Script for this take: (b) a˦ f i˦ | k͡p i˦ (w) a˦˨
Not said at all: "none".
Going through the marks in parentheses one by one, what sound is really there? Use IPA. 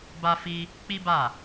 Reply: b, b

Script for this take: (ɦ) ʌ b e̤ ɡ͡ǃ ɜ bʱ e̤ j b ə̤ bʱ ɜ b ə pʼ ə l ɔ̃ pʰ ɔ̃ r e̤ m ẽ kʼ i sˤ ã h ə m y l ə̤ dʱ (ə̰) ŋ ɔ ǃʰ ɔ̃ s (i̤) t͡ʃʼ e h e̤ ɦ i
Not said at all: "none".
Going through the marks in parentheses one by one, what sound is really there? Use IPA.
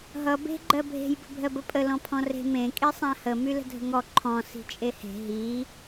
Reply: ɦ, ə̤, i̤

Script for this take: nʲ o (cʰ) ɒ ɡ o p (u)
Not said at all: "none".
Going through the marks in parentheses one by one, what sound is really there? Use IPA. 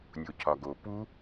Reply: cʰ, u

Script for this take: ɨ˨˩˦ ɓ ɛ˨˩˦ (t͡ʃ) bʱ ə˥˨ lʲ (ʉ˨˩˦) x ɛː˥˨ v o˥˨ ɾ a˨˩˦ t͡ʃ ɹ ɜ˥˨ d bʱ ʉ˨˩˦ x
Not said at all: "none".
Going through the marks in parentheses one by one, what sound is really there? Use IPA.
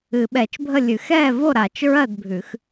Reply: t͡ʃ, ʉ˨˩˦

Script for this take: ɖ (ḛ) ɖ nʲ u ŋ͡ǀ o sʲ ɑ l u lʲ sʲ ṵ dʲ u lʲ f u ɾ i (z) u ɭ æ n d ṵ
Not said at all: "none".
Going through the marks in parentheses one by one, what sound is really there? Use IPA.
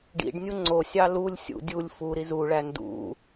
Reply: ḭ, z

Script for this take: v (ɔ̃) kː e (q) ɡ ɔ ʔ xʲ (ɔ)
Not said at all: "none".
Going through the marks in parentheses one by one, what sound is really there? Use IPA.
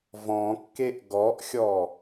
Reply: ɔ̃, ʔ, ɔ

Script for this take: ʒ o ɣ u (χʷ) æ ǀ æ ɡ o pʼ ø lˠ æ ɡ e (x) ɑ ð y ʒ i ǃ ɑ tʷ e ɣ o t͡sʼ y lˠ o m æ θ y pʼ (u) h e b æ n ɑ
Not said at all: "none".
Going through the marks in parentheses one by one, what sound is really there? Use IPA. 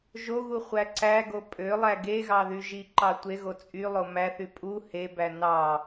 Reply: χʷ, ɣ, u

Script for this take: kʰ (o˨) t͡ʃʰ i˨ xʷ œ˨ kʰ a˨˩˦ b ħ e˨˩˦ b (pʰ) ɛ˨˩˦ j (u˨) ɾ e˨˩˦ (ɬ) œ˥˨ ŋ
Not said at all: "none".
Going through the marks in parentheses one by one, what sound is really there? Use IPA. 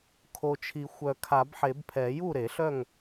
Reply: o˨, pʰ, u˥˨, ɬ

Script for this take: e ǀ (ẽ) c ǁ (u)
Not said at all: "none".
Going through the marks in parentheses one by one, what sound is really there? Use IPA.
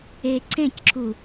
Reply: ẽ, u

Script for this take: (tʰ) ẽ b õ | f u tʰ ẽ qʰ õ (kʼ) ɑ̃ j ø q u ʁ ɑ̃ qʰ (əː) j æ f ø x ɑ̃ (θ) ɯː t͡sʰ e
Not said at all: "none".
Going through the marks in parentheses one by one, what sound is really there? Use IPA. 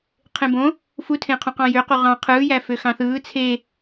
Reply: qʰ, q, ɯː, θ

